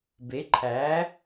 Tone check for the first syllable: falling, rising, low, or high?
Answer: rising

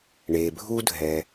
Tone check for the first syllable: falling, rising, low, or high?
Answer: low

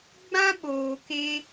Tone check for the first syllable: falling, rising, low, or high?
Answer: high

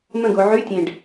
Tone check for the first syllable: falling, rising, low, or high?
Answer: falling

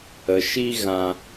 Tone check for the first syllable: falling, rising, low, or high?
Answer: low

